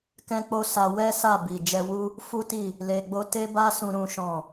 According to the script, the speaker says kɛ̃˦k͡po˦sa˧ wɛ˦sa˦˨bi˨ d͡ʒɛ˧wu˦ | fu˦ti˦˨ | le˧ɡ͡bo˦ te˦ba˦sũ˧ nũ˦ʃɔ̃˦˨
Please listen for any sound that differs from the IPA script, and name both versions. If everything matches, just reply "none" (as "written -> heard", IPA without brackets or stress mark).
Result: n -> ɾ